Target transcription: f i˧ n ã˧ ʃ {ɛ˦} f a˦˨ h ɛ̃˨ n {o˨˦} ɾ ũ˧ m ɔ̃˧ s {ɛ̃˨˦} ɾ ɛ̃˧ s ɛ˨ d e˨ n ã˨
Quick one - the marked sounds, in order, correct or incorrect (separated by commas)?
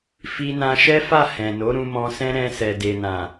correct, correct, incorrect